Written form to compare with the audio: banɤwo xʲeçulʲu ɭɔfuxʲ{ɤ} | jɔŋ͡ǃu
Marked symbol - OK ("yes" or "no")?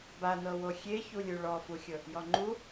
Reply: yes